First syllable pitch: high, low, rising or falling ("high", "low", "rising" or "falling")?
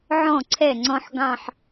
falling